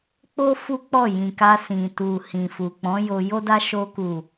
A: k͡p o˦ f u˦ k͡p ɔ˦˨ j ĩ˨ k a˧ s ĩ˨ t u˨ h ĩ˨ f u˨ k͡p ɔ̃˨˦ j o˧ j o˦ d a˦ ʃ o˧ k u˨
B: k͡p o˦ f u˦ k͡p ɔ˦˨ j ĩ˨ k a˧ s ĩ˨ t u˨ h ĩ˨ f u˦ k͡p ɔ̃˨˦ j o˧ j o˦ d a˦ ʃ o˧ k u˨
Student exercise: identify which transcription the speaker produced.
A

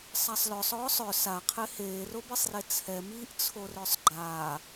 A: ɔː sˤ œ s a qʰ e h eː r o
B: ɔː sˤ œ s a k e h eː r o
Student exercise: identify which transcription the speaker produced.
A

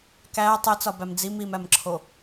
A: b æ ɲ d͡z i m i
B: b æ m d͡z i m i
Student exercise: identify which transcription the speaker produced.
B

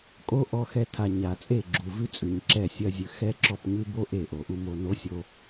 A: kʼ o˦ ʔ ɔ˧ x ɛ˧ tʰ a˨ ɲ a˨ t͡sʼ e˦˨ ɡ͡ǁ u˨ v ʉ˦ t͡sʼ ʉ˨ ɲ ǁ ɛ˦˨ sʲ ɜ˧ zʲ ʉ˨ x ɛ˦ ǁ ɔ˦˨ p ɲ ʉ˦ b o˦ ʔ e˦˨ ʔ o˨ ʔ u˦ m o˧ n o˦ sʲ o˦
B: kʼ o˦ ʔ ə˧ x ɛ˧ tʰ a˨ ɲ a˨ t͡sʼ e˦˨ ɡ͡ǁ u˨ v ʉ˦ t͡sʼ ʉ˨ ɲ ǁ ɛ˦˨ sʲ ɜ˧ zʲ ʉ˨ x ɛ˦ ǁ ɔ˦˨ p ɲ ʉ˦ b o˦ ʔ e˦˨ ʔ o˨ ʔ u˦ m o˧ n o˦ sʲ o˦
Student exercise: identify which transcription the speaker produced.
A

